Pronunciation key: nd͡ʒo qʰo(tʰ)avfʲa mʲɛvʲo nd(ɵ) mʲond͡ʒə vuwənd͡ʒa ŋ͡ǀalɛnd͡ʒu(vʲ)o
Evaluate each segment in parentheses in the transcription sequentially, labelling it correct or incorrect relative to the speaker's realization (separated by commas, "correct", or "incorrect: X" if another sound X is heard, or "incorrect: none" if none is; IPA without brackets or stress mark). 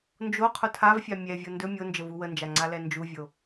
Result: correct, correct, correct